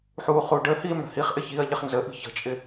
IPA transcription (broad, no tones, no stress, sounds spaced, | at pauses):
ħ uː χ uː ɖ ə h iː m ɽ ə̤ h i χ ʔ ɪ ç iː ɐ̯ ʎ ɪ χ n z ə ʔ i̤ ç ə̤ t͡ʃʼ ɪ